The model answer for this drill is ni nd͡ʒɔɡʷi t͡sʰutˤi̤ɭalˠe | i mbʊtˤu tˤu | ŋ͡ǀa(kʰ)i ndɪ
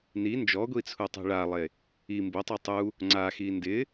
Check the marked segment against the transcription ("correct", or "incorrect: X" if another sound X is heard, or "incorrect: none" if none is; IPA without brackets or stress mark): incorrect: x